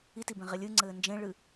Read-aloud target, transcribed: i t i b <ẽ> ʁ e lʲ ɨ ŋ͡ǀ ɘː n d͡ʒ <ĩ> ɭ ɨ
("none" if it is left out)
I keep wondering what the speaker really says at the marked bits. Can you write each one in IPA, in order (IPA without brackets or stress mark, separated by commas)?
ẽ, ẽ